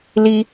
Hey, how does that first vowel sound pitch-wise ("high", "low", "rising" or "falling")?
high